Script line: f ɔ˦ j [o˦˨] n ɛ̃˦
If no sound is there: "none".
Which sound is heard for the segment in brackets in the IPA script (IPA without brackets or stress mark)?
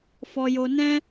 o˦